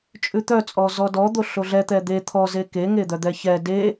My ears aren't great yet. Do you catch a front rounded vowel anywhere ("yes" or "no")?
yes